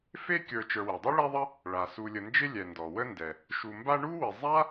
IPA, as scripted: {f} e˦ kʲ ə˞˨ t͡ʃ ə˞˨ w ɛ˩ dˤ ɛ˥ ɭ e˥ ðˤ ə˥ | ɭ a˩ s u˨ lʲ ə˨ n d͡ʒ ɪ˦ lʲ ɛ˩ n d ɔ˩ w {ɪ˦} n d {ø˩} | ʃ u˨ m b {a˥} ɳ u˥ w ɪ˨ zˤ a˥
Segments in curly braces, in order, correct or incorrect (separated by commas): correct, incorrect, incorrect, incorrect